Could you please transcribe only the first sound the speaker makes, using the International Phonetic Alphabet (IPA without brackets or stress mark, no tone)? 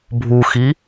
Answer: bʱ